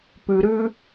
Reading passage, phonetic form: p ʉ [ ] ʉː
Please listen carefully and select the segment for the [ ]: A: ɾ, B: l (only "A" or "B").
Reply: A